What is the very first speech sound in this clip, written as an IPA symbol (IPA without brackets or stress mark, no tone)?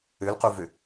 ø